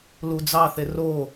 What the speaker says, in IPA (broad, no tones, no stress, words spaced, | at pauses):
lud͡zɑθe ro